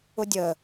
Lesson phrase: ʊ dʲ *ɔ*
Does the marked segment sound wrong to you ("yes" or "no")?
yes